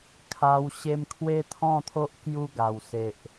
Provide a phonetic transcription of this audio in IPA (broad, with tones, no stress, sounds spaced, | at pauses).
kʰ a˧ w ɕ e˧ m kʰ w e˦ t̪ʰ ɔ̃˥˧ t̪ʰ o˦ ʔ k j u˦ ɡ a˨˩ w s e˨ ʔ